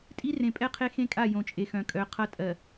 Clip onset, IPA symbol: tʼ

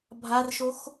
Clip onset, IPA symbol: bʱ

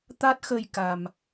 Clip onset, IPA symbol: t̪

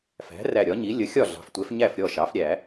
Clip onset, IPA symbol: f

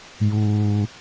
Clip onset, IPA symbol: j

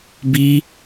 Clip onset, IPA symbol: b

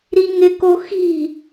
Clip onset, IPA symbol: ɾ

